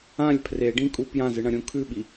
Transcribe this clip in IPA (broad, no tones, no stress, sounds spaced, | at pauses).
ã lʲ pʰ r e ɖ ĩ kʼ u p j ã z ɨ ɳ ɐ̃ ɾʲ ũ kʰ ʉ ɓ i